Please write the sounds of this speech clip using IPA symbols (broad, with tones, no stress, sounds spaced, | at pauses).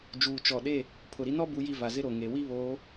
d͡ʒ uː˨ t͡ʃ ɔ˨ ɗ e˦˨ | pʰ ʊ˨ ɾ i˦ n ɔ˦ b u˦ j i˦ v a˨ z ɪ˦ ɾ o˨ ŋ e˨ w i˦ β oː˨˦